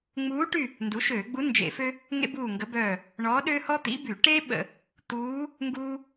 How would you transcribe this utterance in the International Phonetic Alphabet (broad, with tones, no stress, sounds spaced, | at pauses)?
ŋ͡m uː˧˥ ʈ y˦˨ | n d u˩˥ ʃ øː˧˩˧ ɡ͡b u˧˥ n d͡ʒ ḛ˧˩˧ f ø˥ | ŋ ḛ˥ b uː˦˨ ŋ ɡ ə˧˥ b œː˦˨ | ɳ ɔ˧˥ ɗ ø˥ h ɔ˥ t̪ ḭ˧˥ b y˧˩˧ ʈ e˥ ɓ ə̰˧˩˧ | t̪ uː˧˥ | ŋ ɡ uː˥